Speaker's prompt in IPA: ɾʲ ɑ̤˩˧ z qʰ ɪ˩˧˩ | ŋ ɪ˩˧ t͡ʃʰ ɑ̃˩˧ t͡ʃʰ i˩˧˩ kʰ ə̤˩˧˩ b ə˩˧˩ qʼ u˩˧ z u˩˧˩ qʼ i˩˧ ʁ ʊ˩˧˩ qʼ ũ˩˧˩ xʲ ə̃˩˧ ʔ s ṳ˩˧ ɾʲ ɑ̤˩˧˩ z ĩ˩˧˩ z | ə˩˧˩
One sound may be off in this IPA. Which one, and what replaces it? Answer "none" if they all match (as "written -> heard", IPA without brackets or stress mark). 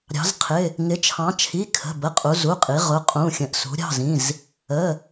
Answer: none